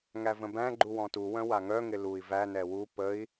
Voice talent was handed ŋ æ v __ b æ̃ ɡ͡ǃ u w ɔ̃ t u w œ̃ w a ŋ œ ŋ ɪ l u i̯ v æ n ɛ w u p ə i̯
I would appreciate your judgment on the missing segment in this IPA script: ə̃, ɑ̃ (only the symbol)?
ə̃